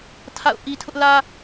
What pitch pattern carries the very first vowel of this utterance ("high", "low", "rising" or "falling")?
falling